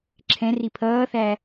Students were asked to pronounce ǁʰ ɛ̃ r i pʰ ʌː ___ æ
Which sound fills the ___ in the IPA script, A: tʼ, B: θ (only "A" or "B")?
B